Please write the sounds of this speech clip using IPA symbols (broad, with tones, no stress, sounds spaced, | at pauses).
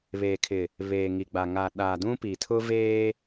β eː˨ kʰ ɪ˨ | β eː˨ ŋ i˨ ɡ͡b a˨ ŋ a˨ ɗ aː˨ d ũ˦ p i˨ tʰ ʊ˦ v eː˦